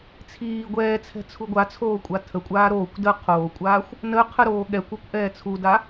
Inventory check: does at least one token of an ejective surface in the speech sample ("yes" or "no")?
yes